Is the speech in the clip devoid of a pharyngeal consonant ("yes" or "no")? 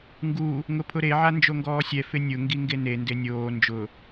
no